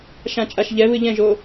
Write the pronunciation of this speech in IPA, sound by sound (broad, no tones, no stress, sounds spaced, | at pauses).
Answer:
ʃ ã t͡ʃʼ a ʃ ʎ ɛ β ɨ ʎ ɛ̃ ʒ o